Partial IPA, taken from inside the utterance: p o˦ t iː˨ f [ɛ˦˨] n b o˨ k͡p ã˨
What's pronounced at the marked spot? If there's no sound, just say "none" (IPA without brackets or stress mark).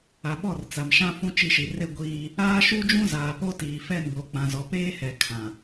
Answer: ɛ˦˨